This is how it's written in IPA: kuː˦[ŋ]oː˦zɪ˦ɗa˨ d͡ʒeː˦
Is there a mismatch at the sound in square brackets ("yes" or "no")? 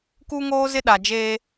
no